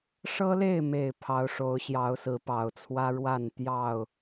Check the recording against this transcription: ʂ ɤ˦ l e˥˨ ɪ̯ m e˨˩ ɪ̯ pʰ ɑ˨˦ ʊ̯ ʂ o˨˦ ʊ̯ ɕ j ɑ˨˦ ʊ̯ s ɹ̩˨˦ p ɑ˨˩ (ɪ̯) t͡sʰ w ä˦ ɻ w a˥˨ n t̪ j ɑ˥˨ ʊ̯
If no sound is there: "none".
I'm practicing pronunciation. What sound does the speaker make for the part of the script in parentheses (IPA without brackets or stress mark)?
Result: ʊ̯